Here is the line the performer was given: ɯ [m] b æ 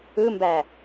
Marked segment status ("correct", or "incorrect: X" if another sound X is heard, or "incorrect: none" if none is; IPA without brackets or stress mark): correct